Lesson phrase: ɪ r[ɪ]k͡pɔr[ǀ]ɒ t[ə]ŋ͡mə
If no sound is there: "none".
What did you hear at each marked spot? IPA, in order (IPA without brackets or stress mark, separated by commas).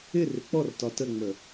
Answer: ɪ, t, ə